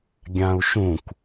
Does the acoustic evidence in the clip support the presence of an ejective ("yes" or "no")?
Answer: no